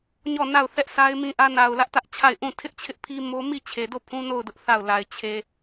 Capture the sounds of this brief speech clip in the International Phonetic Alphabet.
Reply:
ɲɔ˦˨na˦˨ʊ̯ θɛ˦ʔsa˦ɪ̯mĩ˦ ʔä˦ na˨ʊ̯ lä˦ʔtä˦ʔt͡ɕʰa˦˨ɪ̯ ʔũ˦˨ tʰɪ˦ʔt͡ɕʰɪ˦ʔpʰi˦mo˦ mi˦˨t͡ɕʰe˨do˦˨ pʰũ˦no˦˨ʊ̯dʊ˦ʔ θa˦˨ʊ̯la˨ɪ̯ t͡ɕʰe˨

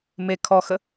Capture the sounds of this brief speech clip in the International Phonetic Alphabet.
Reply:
me kʰɔxə

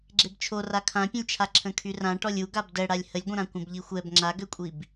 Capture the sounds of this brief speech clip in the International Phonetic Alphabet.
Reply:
ɡ͡ǁebt͡ʃʰo rakʰãpʲə̃lʲt͡ʃʰa ǁʰə̃kʰyrã ʈɔlʲu ɡabdɛɽalʲ həlʲɡʷə̃ɾã kʷə̃bʎixʷɛb ŋ͡ǁaɡøkʷʼib

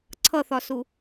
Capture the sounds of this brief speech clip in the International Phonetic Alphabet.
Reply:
ǀʰʌθɒsu

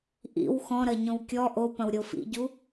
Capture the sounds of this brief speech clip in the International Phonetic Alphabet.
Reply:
ʔḭw xɔ̃ɾɐɲõw kʲɔ ʔopɐ̃w ɾʲofḭɟu

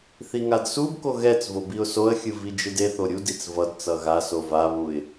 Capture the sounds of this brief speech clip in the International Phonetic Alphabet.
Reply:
θiŋadsubko ɣɛt͡svo biʊ̯soə̯xʲɯ vid͡ʒɯdeθo ɾʲudit͡s vʌd t͡sʌɣaso vaβuɪ̯

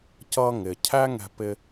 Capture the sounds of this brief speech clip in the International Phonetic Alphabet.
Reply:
cʌ˧ ŋɪ˩cʰæ˥ ŋɛ̤˧pɪ˧

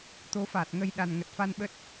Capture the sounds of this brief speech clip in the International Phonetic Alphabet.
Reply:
t̪o˨˦fa˨˩t̚ŋə˧jɗa˨˩n ŋə˨˩t̚fa˧n ɓə˦˥t̚

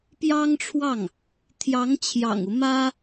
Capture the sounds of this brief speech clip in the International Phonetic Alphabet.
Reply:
pjɑ˥ŋʈ͡ʂʰwɑ˥˩ŋ | t̪ʰjɑ˧˥ŋt͡ɕʰjɑ̰˨˩ŋu˦ mä˥

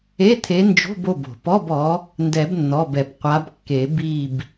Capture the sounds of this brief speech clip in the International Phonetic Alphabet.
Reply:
e˧˥˧t̪ʰe˨˦nd͡ʒo̤˧˥˧bo˩˧˩b o̤˩pɔ˧˥˧bɔ˨˦ | ndɛ˨˩˦bnːɔ˩˧˩bɛ˩b qʷa˨˦bkːe˨˩˦ bi˦˨b

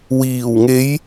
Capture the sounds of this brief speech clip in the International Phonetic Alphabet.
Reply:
wiː˨˩wŋe˨˧j

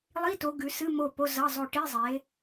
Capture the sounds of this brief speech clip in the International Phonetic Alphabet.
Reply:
lˠi˧˥˧to˨˦ ɡʉ˨˦sɨ˧˥˧mo˦˨ po˧˥˧zɐ˧˥˧zˤo˦˨ ʈi˧˥˧zˤe˨˦

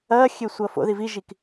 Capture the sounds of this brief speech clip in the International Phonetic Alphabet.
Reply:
ɐːxʲe sʷɐːfo̰ði viʒik

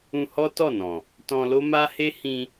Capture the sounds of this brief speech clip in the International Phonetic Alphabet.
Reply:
ũ˧hɔ˦ tɔ˦˨nɔ̃˨ | tɔ̃˧lo˦ma˦ he˦hĩ˧

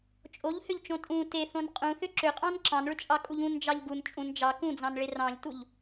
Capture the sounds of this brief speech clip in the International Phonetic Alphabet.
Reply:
t͡ʃʼoʎhʏʎt͡ʃõ tʼũ teθõn qʼũθʏ ǁʏqʼɑ̃n ǁɑ̃nɭʏt͡ʃʼɑkʼuʎ ũnd͡ʒɑʎ ɡun t͡ʃʼũn d͡ʒɑ kũd͡zɑ̃nɭe rɑ̃ʎtuʎ

